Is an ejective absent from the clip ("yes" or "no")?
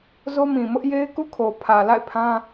yes